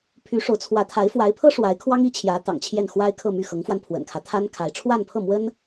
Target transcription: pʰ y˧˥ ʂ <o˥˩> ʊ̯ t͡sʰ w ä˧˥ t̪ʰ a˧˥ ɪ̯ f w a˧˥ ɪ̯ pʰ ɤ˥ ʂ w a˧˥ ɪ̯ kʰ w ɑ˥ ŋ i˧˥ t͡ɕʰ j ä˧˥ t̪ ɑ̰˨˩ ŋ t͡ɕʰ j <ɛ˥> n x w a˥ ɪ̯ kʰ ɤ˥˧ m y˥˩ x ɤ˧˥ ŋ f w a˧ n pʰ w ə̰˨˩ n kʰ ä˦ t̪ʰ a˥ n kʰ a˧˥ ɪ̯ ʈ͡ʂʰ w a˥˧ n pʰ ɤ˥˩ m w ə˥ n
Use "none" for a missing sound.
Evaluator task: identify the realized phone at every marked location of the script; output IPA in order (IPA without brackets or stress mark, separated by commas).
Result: o˧˥, ɛ˥˩